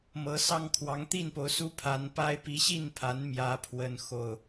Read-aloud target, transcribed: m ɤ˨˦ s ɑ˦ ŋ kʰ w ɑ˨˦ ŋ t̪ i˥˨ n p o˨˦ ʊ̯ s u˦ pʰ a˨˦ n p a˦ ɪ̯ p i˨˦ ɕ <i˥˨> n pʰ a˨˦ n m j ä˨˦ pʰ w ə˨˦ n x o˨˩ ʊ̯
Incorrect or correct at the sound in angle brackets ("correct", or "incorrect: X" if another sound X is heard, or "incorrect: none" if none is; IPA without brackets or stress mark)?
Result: correct